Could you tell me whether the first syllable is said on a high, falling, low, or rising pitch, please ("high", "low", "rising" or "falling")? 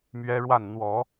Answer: high